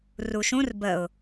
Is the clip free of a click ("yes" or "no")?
yes